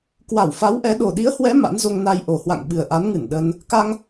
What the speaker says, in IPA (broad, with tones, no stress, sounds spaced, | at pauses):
k w a˧˩ w f a˨˦ w ʔ ɛ˨˦ ɗ o˨˩ ɗ i˨˦ ə̯ h w ɛ˨˦ m a̰˧˥ n z o˧ ŋ n a˧ j ʔ o˨˩ h w a̰˧˨ ŋ ɓ ɨ˨˩ ə̯ ʔ a˨˦ n ŋ ɨ˧˩ n ɗ ə˧ n | k a˧ ŋ